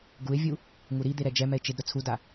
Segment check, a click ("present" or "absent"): absent